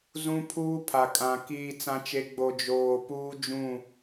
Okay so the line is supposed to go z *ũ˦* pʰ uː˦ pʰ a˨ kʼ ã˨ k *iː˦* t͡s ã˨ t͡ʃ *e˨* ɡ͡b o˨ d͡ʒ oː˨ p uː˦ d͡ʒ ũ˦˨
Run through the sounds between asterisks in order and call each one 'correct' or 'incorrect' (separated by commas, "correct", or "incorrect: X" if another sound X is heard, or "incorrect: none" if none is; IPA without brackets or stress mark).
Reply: correct, incorrect: iː˨, correct